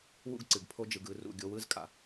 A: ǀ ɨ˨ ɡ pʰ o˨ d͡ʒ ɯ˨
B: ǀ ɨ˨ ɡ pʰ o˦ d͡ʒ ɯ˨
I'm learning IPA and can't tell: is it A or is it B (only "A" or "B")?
B